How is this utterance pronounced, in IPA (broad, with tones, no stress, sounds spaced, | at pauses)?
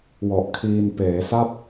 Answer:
w ɔ˨˩ ʔ kʰ iː˧ n p eː˩˦ s a˥˩ p̚